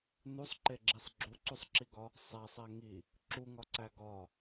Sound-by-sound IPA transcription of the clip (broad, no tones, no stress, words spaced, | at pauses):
nusˤǃeɡ͡ǁisˤ ɡ͡ǁuǀusˤǁiɡɒ | sˤæsˤæ ŋi | ǁuŋɒǀæ ɡɒ